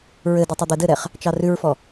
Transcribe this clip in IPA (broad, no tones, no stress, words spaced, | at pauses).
ɹɘdɘtˤə d̪ɘdɘɾɛχ | t͡ʃɑrʉɹfɔ